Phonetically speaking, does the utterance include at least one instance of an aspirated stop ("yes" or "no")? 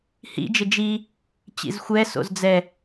no